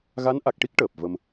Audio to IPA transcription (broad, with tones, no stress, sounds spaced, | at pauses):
ɣ a˧˥ n ʔ a˨˩ k̚ ʈ i˦˥ k̚ ʈ əː˨˩ p̚ v ə˧ m